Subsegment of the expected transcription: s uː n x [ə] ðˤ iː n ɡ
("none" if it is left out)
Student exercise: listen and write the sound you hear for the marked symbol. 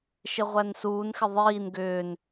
ɪ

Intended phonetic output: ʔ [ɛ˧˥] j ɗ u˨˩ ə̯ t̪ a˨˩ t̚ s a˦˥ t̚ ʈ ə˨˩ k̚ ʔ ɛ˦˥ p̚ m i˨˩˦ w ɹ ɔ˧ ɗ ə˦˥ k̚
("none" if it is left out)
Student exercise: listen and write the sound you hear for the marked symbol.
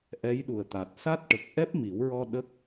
ɛ˧˥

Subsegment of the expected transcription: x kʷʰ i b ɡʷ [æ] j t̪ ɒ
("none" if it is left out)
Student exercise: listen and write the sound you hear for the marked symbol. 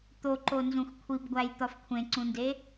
æ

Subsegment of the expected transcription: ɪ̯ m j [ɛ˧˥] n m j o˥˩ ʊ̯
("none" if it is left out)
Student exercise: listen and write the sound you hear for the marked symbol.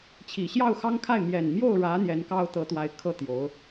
ɛ˨˩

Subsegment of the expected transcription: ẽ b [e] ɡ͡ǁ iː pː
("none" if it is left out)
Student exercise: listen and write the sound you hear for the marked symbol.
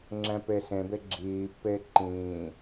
e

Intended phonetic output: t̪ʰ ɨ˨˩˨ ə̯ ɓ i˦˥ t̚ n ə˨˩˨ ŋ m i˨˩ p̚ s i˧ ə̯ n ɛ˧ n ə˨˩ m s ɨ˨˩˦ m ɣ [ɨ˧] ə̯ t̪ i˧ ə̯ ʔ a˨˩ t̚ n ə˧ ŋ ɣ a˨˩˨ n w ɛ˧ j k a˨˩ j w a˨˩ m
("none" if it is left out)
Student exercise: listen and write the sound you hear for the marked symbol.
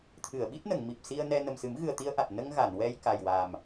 ɨ˨˩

